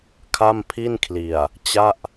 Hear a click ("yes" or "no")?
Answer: no